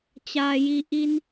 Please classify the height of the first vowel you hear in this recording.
low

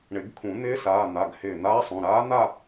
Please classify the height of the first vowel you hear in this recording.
high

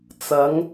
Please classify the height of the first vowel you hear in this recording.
low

